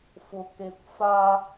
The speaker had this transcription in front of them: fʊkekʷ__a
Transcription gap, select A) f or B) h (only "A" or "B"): A